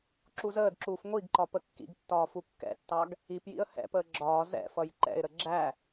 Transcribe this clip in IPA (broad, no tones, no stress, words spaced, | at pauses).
ǁuzəːdǁuːf ŋʷiɡǃɒ pəkːḭɡtːɒː fukːɛ̰tːɑɡ | ipjḭə̯ hɛ̰pəː ɡ͡ǁɒː zɛ̰fʌj ǃɛ̰ɪ̯ɾə ɡ͡ǁæ